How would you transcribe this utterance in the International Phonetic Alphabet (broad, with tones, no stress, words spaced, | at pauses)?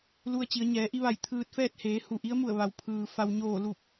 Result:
lu˧ə̯t͡ɕi˩˧ə̯ ɲɛː˩˧ʔi˧ʋa˧˩j t̪ʰɯː˧t̚fɛː˥˨t̚ heː˩˧hu˩ ʔi˧˥ə̯mu˧˩ə̯ ʋa˩w pʰɯː˩ fa˩wɲoː˧˩ lu˧˩p̚